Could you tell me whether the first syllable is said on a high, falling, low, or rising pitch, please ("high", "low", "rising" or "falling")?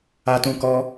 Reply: high